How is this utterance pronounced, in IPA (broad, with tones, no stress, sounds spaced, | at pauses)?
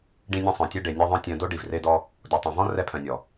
ɖ ĩ˧ nʲ ẽ˧ sˤ œ̃˨ tʲ ɛ˧ ɖ e˨ nʲ e˧ ðˤ œ̃˧ tʲ œ̃˧ d o˦ ɖ i˨ v r e˧ d ɔ˧ | d o˨ tˤ œ̃˨ v ɔ̃˦ r ɛ˧ pʰ œ̃˨ nʲ ɔ˨